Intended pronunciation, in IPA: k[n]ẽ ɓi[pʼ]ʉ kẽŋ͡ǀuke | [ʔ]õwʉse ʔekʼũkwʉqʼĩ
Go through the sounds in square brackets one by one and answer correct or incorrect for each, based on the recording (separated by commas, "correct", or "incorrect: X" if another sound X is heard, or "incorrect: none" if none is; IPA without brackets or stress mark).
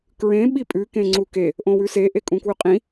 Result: incorrect: ɹ, correct, correct